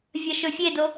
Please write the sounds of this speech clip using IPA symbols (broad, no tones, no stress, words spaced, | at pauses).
vʲɜʃɵfʲedo